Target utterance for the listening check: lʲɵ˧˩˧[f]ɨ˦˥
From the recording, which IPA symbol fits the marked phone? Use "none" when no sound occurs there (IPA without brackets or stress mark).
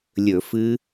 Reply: f